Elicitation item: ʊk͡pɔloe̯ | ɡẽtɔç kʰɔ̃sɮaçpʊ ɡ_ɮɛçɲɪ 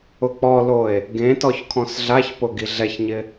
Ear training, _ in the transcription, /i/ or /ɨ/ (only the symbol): i